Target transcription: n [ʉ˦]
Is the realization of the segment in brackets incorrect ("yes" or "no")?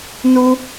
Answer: yes